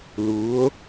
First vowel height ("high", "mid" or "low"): high